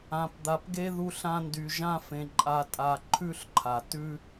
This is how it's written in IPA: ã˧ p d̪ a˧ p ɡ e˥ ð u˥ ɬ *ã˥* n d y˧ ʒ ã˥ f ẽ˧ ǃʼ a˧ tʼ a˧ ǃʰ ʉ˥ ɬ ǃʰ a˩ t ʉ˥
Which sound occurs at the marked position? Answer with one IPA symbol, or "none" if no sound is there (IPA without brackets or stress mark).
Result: ã˥